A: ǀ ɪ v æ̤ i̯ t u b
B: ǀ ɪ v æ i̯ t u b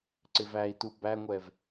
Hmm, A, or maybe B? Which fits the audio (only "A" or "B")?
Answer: B